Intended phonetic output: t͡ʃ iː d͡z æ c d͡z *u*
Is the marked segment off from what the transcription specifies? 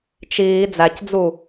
no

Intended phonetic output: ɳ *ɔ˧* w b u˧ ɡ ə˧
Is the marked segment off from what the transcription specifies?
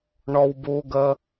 no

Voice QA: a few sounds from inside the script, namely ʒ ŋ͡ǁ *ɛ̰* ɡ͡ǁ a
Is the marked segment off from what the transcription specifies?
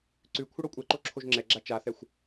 yes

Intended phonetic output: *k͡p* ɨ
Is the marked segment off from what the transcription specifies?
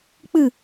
no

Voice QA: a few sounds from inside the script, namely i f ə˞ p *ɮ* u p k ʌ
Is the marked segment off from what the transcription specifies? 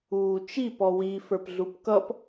no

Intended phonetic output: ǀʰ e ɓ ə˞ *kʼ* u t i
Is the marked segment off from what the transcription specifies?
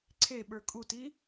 no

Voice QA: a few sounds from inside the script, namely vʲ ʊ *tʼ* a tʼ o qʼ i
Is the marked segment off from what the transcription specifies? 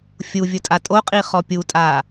no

